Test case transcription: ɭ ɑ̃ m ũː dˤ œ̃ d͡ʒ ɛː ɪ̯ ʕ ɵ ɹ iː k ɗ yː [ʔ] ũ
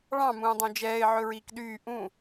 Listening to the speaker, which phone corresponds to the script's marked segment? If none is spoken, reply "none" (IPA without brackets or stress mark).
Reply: ʔ